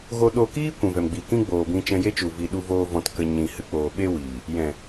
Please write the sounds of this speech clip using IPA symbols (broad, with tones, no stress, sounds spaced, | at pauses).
ɣ o˧ ɗ o˧ k iː˦ kʷ ũ˨ v ɛ˨ m ɡ͡b i˨ k ĩ˦ ɡ͡b oː˨ b ĩ˧ t͡ʃ ɛ̃˧ j e˦ t͡ʃ u˨ v i˨ ɗ u˧ v oː˧ v ɔ̃˧ t k ə˧ ɲ ĩ˨ h ɨ˧ k͡p oː˨ ɓ e˦ w iː˨ | j ɛ̃˨